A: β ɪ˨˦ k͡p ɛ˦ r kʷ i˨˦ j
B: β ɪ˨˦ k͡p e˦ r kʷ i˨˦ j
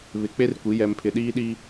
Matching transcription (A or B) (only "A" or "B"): B